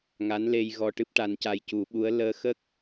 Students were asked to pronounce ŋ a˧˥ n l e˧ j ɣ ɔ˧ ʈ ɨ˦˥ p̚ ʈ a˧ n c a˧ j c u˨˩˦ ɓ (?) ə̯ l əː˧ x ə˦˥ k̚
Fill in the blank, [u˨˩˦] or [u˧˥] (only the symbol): u˧˥